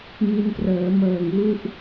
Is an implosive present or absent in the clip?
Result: absent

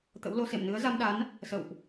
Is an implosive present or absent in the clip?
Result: present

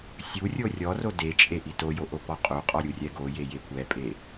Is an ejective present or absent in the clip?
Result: present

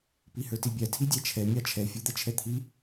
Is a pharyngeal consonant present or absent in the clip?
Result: absent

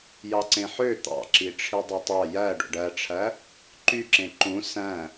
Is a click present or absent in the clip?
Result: present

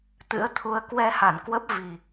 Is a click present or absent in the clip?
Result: absent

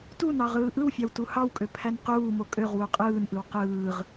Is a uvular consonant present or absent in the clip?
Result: present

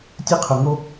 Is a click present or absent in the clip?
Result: absent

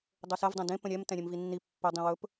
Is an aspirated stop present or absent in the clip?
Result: absent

